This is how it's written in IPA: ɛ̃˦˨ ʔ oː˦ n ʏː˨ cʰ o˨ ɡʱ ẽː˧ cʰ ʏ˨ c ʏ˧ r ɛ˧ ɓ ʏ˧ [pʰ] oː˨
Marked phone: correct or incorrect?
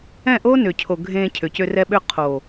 incorrect